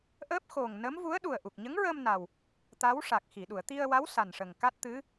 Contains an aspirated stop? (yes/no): no